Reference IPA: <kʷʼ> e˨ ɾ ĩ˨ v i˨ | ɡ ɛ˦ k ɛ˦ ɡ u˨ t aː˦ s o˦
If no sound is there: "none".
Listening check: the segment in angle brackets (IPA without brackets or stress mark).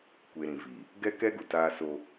kʷ